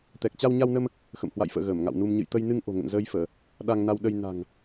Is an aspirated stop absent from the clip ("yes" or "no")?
yes